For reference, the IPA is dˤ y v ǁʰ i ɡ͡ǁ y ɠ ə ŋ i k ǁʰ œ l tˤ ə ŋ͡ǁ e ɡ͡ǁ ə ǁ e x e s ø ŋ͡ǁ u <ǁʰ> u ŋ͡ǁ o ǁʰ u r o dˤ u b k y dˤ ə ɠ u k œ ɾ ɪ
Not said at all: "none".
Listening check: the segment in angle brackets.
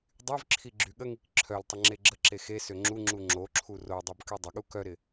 ŋ͡ǁ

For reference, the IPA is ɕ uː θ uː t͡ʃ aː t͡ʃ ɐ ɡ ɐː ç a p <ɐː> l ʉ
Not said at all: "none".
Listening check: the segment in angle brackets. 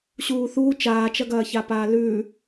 aː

